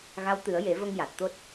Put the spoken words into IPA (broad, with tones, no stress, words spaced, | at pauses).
ɣa˧˥wt̪ɨ˨˩˦ə̯je˨˩˦və˧ŋ ja˨˩t̚t̪o˦˥t̚